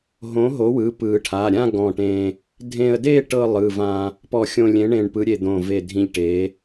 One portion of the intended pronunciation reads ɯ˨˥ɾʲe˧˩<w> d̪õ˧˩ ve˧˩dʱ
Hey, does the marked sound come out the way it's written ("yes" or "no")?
no